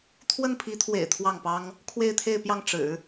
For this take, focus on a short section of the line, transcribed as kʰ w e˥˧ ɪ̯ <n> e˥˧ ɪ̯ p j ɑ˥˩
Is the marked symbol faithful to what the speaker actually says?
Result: no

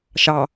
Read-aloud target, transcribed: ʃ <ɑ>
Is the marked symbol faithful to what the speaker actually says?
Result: yes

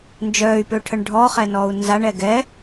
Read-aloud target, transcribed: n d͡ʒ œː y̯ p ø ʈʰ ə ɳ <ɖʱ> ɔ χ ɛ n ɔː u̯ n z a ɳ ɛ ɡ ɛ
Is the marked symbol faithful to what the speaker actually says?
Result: yes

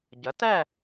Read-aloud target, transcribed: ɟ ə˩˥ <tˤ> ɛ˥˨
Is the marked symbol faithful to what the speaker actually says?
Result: no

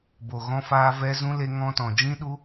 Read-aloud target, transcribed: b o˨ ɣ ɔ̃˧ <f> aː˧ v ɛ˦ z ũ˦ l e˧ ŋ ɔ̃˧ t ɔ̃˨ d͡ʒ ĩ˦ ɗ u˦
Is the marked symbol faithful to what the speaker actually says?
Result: yes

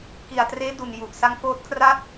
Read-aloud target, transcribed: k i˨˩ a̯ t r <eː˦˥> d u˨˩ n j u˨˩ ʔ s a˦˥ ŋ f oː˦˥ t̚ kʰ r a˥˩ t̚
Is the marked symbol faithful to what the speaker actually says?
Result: yes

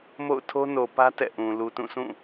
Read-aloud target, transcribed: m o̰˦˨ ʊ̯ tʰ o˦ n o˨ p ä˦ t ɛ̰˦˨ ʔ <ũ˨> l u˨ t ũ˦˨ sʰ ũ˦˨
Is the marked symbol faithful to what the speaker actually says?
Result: yes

